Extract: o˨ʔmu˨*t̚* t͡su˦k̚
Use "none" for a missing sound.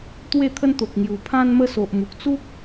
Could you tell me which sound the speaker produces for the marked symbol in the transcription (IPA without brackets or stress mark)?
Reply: k̚